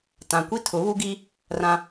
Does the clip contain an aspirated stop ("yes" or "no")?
yes